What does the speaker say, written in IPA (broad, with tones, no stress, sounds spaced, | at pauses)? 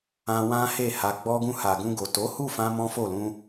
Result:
ã˧ w ã˦ h e˦˨ h a˧ ɡ͡b ɔ˧ ɡ ũ˧ h a˨ ɡ ũ˧ ɡ o˨ t o˨˦ h u˦˨ f ã˧ m ɔ̃˦ f o˦˨ l ũ˧